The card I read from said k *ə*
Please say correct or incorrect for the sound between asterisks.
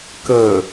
correct